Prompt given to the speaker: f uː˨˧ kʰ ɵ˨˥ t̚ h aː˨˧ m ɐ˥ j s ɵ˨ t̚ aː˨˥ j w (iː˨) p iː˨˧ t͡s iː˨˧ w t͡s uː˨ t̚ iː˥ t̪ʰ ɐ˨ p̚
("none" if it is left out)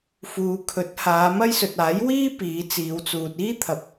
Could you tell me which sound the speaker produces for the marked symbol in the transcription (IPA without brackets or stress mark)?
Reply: iː˥